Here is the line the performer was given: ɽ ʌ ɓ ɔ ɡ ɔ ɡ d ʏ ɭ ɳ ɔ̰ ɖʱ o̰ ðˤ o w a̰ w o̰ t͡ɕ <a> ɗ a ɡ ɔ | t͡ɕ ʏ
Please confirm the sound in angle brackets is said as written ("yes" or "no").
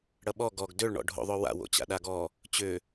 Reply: no